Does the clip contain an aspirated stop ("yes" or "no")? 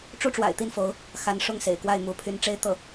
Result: yes